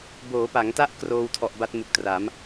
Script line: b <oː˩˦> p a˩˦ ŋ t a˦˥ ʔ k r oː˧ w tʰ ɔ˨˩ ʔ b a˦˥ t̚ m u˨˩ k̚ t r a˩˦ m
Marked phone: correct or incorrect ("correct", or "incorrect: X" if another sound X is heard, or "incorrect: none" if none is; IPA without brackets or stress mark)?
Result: correct